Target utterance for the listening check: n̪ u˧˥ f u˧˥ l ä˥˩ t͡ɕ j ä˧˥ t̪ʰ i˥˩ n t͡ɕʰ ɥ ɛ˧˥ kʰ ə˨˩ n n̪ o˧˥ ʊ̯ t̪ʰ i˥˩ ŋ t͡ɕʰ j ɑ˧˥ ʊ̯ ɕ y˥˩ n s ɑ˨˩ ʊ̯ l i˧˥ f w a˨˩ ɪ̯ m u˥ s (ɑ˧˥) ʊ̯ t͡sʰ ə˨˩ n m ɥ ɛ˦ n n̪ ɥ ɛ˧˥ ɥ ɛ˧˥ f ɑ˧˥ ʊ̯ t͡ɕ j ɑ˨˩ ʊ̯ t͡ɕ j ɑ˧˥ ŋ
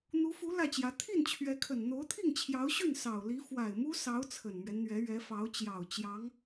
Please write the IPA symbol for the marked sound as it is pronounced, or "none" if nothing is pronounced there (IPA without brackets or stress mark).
ɑ˧˥